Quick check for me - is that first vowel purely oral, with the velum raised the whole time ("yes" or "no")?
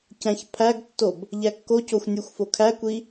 no